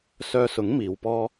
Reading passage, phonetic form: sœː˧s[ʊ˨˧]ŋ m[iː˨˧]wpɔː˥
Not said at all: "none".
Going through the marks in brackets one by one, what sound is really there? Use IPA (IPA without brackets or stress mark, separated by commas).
ʊ˨˥, iː˨˧